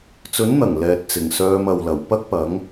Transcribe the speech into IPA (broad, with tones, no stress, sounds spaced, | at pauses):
t͡s ɵ˨˥ n n̪ ɐ˨˩ ŋ l ɛː˨ t̚ t͡s ɪ˨˩ ŋ s œː˧ m ɐ˨ w l ɐ˨˩ w p ɐ˥ k̚ p ɐ˨˥ ŋ